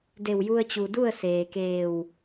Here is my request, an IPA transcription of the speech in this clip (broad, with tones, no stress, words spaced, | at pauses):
de˧˩wju˧ə̯t͡ɕu˩ du˥˨ə̯ seː˩keː˧˩w